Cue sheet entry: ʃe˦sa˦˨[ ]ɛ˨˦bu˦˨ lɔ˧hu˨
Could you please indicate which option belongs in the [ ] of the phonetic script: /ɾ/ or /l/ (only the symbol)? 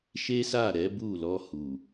ɾ